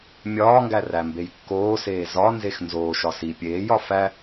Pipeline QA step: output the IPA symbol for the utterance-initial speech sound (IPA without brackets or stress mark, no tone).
mʲ